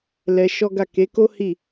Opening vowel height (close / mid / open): mid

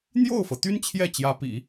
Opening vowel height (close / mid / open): mid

